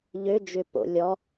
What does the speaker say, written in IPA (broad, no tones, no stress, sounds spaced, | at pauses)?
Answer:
ʎ ø d͡ʒ ʏ p o̰ lʲ ɔ